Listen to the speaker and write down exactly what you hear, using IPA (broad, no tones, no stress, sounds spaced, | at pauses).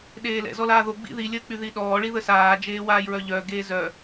ɗ eː l ɛ̰ z ɔ l aː ð o ɡ͡b ḭ ð i lʲ əː k͡p y ð i ɗ ɔː ɭ i ð ə s aː d͡ʒ eː w aː j ɹ œ ʎ œ ɡ eː z œ